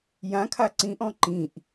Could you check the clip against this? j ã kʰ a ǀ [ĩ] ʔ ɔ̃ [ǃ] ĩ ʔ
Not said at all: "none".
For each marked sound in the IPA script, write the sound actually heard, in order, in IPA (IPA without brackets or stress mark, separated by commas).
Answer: ĩ, ǃ